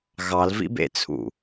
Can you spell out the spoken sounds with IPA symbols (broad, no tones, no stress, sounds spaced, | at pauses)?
ɣ ɑ l v ḭ b ḛ t͡sʰ ṵ